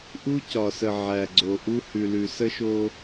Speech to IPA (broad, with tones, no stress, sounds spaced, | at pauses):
ʔ u˦ c ɒ˨ s ə˨ ʕ æ˨ ɡ͡ǀ o˨ ʔ u˦ h ʉ˨ l ʉ˨ s ə˦ ʃ o˦